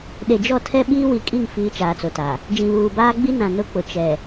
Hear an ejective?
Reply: yes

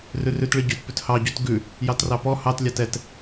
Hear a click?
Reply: no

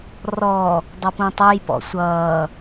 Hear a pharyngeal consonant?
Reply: no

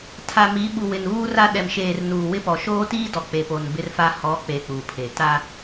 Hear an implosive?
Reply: yes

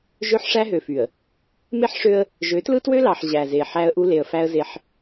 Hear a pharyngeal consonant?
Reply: yes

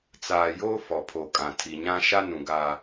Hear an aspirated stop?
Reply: yes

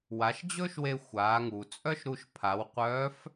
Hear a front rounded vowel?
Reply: yes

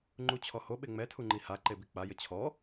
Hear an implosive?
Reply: yes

